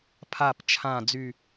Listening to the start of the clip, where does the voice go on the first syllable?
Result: low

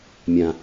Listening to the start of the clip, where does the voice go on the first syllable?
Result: low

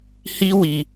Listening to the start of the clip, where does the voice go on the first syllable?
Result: high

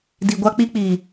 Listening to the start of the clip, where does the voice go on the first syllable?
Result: low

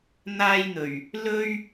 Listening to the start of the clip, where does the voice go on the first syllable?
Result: high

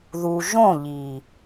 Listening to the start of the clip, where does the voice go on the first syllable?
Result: low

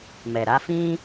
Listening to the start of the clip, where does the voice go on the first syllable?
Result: low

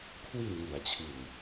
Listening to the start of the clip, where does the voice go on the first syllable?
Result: low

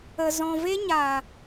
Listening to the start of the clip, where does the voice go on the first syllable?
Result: low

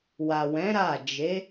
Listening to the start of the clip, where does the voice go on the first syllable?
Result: low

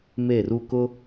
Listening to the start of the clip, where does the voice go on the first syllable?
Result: falling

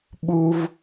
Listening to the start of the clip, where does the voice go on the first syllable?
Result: high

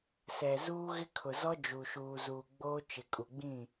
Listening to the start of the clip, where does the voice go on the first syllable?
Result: low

